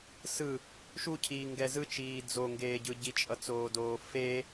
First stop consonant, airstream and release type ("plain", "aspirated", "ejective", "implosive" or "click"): aspirated